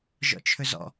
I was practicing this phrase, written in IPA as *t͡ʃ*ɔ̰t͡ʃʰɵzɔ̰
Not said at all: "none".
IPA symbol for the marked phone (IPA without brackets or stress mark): ʒ